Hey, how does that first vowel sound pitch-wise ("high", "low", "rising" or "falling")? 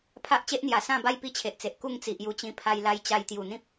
high